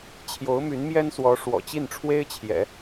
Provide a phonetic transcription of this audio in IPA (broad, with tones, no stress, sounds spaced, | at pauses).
t͡ɕʰ j o˧˥ ʊ̯ m y˧˥ n m j ɛ˥ n s w ɔ˧˥ ʂ w ɔ̰˨˩ t͡ɕ i˥˩ n ʈ͡ʂʰ w e˥ ɪ̯ t͡ɕʰ j ɛ̰˨˩˦